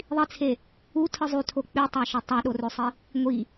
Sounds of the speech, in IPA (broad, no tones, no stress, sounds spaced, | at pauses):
ðˤ i t͡sʰ e | u tʰ ɯ zˤ y tʰ o k͡p y tˤ ɑ ʃ o tˤ ɑ ɗ o r ø sˤ i | ŋʷ i